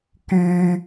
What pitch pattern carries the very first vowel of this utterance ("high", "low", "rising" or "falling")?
high